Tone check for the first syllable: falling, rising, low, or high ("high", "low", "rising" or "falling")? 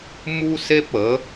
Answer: high